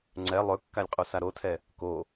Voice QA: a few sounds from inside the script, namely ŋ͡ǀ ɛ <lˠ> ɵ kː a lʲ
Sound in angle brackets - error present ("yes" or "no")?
no